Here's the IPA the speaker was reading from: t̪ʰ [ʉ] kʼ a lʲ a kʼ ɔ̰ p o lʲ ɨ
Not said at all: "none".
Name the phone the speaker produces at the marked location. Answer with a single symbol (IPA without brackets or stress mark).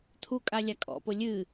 u